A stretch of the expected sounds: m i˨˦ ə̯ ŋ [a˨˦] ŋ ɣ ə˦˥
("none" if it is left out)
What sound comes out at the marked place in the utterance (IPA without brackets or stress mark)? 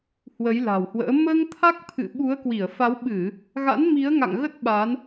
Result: a̰˧˨